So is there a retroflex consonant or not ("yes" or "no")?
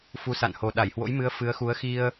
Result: no